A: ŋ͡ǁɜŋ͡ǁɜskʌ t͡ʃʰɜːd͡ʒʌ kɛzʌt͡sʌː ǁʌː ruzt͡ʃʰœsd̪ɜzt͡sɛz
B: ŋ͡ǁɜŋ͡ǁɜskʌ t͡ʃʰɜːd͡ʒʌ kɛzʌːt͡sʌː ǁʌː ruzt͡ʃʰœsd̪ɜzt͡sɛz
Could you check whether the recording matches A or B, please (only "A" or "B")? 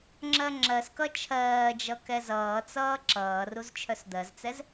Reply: B